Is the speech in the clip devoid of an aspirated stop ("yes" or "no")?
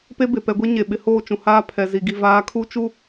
no